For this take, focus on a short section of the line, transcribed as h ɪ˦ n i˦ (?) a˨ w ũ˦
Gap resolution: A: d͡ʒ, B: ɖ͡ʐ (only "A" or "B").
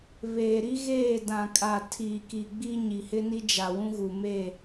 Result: A